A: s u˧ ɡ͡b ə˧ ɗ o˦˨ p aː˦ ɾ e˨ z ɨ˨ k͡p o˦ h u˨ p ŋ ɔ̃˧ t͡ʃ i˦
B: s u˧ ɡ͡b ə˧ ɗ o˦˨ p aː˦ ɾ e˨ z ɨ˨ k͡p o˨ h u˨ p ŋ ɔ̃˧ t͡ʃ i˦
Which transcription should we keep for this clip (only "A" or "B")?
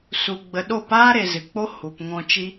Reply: A